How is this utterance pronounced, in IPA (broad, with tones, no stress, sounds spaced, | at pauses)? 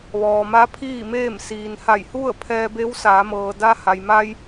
ʋ ɔː˩ m a˧˥ pʰ iː˥˨ m eː˥˨ m s iː˩ n h a˧˩ j h u˥˨ ə̯ pʰ ɛː˧ b e˧˥ w s aː˩˧ m ɤː˩ d a˧ h a˩ j m a˧ j